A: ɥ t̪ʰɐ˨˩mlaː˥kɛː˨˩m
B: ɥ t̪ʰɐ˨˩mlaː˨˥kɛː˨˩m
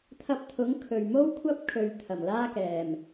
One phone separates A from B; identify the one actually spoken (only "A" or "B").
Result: A